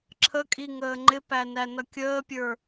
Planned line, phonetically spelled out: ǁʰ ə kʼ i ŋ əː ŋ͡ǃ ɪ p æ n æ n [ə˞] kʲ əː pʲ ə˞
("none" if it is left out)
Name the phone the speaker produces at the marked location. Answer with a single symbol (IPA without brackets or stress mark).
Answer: ʌ